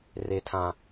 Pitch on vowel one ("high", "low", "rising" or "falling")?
high